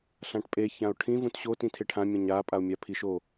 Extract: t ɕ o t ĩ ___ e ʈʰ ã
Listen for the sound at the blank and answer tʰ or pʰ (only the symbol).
tʰ